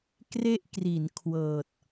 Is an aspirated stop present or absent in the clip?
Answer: present